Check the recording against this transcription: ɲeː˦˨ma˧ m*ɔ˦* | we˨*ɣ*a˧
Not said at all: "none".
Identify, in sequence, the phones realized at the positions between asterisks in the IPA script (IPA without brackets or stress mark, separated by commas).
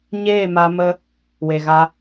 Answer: ə˦, ɣ